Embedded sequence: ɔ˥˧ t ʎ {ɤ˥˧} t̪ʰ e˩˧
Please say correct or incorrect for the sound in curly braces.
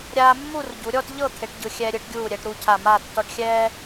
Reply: correct